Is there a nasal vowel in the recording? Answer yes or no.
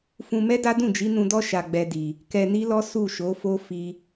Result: yes